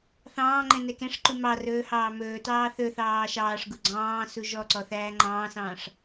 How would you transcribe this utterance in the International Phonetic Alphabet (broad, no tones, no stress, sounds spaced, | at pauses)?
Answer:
θ ɑ̃ː ŋ͡ǃ ɛ̃ n ɛ k ɛ̃ ʂ ǃ u m ɑ r ɵː h ɑː m ɵː t ɑː θ ɵ θ ɑː ʃ ɑː ʂ ɡ u ɡ͡ǀ ɑ̃ː s u ʒ ɔ ǀ ɔ θ æː ŋ͡ǃ ɑ̃ː s ɑ̃ː ʂ